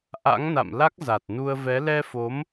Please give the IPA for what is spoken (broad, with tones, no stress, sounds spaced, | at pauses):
ʔ a̰˧˥ ŋ n a̰˧˨ m l a˦˥ k̚ z a˨˩ t̚ n u˧ ə̯ v ɛ˨˦ l ɛ˧ f o˨˦ m